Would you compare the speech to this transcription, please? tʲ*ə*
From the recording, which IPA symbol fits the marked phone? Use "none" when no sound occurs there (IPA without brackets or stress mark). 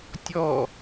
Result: ɔ